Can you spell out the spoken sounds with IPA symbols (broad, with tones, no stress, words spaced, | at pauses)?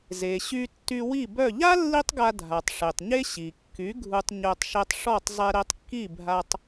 ze˩ɕy˧ tːy˧wi˥˩bœ˥˩ ʎa˥ lːi˥tˤɡa˧ dʱa˩tˤʂe˩tˤɲe˥ ɕi˩kːy˩˥ ɡʱu˧tˤɲœ˧tˤ ʃɛ˧tˤʂɔ˥˩tˤ zˤɛ˧ɾɛ˧tˤkːi˥˩ bʱa˧tˤ